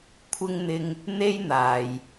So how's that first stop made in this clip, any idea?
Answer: aspirated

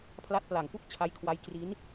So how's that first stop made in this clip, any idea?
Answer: aspirated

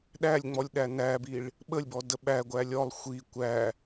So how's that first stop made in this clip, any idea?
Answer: implosive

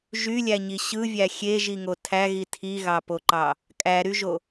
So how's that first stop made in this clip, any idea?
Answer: aspirated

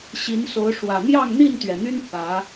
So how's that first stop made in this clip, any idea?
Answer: plain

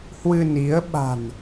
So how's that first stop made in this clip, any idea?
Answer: implosive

